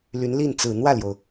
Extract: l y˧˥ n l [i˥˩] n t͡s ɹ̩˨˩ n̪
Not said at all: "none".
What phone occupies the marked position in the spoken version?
i˥˩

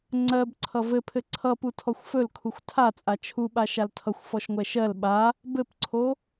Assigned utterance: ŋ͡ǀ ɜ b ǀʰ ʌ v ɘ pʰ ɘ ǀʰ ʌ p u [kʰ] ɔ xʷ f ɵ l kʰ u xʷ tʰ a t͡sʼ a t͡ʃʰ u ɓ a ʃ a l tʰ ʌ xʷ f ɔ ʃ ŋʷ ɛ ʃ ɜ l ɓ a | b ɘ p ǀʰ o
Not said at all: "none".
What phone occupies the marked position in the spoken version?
tʰ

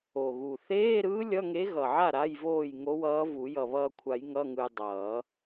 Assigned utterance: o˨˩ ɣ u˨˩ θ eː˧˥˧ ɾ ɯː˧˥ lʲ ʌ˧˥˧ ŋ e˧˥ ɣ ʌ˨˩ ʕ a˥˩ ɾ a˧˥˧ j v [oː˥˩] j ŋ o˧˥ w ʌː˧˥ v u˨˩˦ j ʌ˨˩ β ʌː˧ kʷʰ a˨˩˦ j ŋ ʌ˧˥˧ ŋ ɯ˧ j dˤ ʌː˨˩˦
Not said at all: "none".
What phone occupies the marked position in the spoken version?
oː˥˩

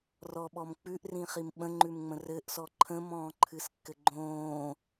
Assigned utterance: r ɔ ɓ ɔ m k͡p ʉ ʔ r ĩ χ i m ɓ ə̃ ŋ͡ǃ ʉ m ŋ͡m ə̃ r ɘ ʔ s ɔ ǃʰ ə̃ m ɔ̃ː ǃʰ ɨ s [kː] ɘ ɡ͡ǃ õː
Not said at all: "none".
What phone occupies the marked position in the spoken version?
kː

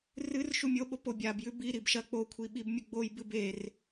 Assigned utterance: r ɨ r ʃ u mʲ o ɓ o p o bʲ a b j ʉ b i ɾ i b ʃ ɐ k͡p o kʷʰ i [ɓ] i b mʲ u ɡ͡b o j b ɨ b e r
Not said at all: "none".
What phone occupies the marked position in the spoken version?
ɓ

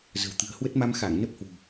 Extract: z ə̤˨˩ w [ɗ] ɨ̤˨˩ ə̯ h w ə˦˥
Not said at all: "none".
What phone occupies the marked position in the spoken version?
t̪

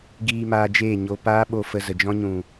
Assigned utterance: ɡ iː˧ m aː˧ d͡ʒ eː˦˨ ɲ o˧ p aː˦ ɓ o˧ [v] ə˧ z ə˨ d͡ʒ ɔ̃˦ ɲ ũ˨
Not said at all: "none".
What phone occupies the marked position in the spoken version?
f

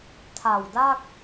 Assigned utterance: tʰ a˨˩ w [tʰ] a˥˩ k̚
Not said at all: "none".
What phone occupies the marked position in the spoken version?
d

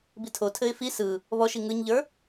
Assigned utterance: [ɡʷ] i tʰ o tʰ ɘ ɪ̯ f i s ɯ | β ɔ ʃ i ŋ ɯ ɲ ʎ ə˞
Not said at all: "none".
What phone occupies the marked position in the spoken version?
b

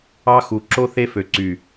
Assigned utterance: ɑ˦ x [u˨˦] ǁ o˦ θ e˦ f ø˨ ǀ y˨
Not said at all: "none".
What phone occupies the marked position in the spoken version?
u˨˦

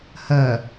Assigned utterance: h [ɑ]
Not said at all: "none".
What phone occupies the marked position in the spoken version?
ɐ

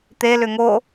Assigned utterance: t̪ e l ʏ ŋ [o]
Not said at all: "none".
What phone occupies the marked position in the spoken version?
o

